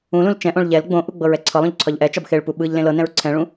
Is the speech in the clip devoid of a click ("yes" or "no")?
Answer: no